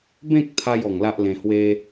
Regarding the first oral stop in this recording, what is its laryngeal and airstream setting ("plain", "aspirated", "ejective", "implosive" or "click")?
plain